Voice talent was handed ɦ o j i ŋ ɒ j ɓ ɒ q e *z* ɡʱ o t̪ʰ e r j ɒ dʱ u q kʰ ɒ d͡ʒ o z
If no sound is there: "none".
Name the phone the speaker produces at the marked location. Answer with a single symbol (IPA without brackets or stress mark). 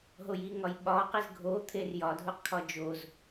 z